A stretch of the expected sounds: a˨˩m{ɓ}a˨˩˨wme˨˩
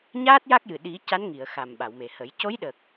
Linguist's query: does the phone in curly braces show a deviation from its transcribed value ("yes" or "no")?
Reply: no